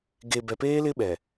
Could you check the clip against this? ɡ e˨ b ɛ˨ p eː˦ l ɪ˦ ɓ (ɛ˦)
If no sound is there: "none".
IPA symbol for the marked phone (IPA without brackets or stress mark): ɛ˨